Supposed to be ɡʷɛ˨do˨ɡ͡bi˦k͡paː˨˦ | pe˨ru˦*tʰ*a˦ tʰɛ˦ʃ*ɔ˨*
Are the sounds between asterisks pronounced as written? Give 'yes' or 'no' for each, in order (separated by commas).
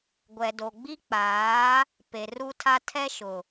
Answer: yes, no